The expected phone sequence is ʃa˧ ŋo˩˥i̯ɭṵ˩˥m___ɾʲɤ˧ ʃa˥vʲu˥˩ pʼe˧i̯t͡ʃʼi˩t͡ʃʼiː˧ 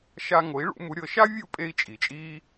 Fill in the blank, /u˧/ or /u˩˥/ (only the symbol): u˩˥